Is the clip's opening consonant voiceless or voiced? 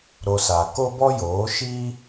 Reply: voiced